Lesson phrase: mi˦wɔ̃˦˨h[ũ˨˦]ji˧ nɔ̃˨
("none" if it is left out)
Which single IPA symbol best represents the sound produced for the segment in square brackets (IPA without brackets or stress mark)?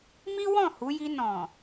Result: u˨˦